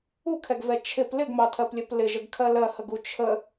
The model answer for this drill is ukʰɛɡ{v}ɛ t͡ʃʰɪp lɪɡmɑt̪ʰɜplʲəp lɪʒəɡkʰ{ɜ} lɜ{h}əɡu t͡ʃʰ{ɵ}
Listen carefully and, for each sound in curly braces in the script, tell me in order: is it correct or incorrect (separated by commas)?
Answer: correct, correct, correct, incorrect